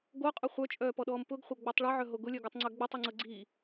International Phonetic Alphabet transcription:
ɡ o qʼ ʊ χʷ œ t͡ʃʼ œː p ɔ ɗ ɔː m p ʊ ɡ χʷ ɤ ɡ͡b o tˤ ɭ e ʕ œ ɦ o ɡ ʊ lʲ œ ɡ œ tˤ ŋ͡ǀ œ ɡ͡b ʊ tˤ i ŋ͡ǀ ɤ ɡ͡ǀ i

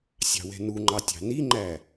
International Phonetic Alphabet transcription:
sʲ ɑ̤ w ɛ̤ n u ŋ͡ǃ ɑ tʲ ɑ̤ n i ŋ͡ǃ æ

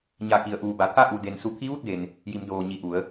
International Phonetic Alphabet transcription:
ɲ a˧˩ k i˩ ə̯ ʔ uː˩ b a˩ t̪ʰ a˥˨ ʔ u˩ d e˩ n s u˧˩ t̪ʰ i˧˥ ʋ u˥˨ t̚ d e˩ n | j i˩˧ m d oː˩ ɲ i˧˩ ʔ u˩˧ ə̯

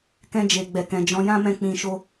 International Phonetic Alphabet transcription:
k ɛ̃˧ d͡ʒ e˨ ɡ͡b ɛ˨ k ɛ̃˨ d͡ʒ ɔ̃˨˦ j ã˦ m ɛ̃˦˨ k͡p ĩ˧ ʃ o˦

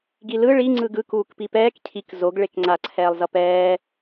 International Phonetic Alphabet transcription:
ɡ i l ɯ ɭ i ŋ͡ǀ ɯ ɡ ɯ k uː k p i p ɛː k cʰ i k z o ɡ ɭ e k ŋ͡ǀ a ǀʰ ɛː lˠ z ʌ p ɛː

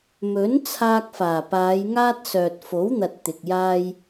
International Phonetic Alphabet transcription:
m ɵ˨˥ n t͡sʰ aː˧ k̚ f aː˨˩ p aː˨˧ j ŋ aː˥ t̚ s œː˨ t̚ f o˨˥ w n̪ ɐ˨ t̚ t̪ ɪ˨ k̚ j aː˥ j

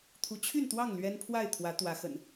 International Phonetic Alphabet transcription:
t̪ʰ u˨˦ t͡ɕʰ y˥˨ n t̪ w ɑ˥˨ ŋ l ɥ ɛ˦ n pʰ w a˥˨ ɪ̯ t̪ʰ w ä˨˦ t̪ w ä˨˦ x ə̰˨˩ n

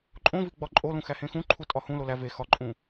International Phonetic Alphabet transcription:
ǃʼ õ v i ɡ͡b ɒ ǃʼ o l ũ x æ h ẽ x ũ ǃʰ u tʼ ɒ h ũ l o l æ v e x ɒ ǃʼ ũ

